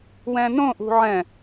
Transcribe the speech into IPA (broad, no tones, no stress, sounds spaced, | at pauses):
w ɛ̃ n õ ʔ ṳ ʕ ɛ̃